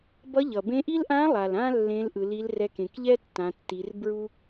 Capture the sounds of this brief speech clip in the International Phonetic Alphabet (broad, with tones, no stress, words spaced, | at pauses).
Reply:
bʌ˧˥ʎʌ˩bẽ˧˥ʔi˥l ʔã˧˥lˠa˩lã˧ lːẽ˧˥lʔɯ˩˧ li˧˥lrɛ˧˥kẽ˩˧k ʎɛ˥tːã˩˧tːi˩˧r bɹu˥